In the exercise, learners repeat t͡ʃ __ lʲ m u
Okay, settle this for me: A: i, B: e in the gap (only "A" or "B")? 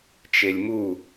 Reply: B